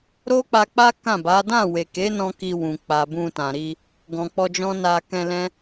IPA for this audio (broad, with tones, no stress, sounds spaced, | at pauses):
ɾ o˦ k͡p a˧ k͡p a˦ k ã˦˨ b a˨˦ d ã˦˨ w e˨ k e˨˦ n ɔ̃˧ k i˧ w ũ˨ k͡p a˨ b ũ˧ t ã˨ ɾ i˧ | ɡ ɔ̃˨ k͡p ɔ˧ d͡ʒ ɔ̃˦ n a˧ k ɛ̃˧ l ɛ̃˦